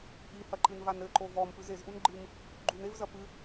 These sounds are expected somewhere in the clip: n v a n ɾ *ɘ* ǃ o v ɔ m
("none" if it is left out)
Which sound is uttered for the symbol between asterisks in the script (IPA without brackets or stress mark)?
ɘ